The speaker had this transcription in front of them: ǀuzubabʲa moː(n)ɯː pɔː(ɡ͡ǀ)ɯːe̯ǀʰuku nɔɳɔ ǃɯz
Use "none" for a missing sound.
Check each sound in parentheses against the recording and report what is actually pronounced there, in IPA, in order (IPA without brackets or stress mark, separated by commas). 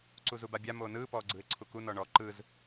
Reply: n, ɡ͡ǀ